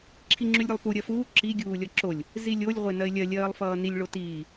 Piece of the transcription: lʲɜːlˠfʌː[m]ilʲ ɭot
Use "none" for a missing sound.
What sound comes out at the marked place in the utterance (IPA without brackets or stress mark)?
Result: n